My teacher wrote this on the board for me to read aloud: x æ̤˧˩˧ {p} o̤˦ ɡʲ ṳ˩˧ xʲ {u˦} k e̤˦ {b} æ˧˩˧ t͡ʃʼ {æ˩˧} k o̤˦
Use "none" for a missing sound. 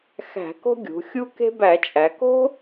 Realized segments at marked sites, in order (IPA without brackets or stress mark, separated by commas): k, u˦, b, æ˩˧